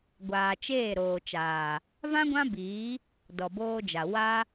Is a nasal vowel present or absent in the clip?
present